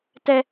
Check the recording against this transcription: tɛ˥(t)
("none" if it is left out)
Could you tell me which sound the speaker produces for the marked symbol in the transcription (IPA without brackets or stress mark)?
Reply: none